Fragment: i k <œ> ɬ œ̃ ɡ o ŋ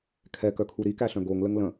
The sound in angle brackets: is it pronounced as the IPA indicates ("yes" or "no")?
no